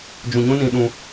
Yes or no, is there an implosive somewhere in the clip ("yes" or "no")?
yes